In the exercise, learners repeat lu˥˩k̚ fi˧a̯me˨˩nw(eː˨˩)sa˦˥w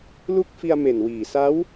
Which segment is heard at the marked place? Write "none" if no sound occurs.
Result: iː˨˩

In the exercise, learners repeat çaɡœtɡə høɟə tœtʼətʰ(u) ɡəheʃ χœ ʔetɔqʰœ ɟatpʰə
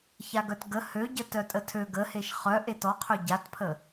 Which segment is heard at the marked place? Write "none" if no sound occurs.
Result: ø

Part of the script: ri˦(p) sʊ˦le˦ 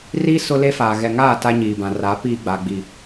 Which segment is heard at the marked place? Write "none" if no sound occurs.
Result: none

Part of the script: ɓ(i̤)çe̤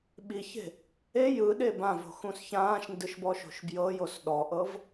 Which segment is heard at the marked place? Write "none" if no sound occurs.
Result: i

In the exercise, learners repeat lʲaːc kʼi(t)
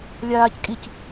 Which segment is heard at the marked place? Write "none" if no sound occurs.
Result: c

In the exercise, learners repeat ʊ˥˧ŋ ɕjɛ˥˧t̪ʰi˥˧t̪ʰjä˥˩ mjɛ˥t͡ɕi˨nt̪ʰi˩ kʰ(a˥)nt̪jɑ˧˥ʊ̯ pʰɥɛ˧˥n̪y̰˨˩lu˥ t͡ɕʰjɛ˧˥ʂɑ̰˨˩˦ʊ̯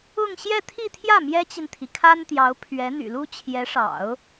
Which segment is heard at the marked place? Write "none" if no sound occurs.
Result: a˥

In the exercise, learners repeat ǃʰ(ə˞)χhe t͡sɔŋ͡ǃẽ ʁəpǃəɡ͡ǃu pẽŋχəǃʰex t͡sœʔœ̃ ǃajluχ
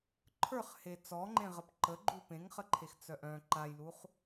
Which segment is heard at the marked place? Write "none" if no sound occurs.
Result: ə˞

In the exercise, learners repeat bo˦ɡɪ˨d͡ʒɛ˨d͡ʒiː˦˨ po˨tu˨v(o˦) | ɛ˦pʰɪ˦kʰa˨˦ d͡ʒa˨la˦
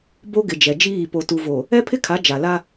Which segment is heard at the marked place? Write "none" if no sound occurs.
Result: o˨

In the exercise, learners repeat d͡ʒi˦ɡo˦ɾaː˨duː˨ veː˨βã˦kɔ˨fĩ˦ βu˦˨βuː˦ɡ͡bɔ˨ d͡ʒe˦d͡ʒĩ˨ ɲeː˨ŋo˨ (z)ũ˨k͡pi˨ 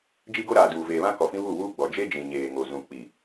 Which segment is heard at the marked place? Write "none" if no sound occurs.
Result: z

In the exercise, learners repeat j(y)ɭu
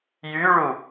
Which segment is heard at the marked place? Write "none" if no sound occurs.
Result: y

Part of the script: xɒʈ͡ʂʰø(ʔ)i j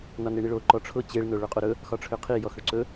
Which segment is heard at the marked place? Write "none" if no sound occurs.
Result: qʰ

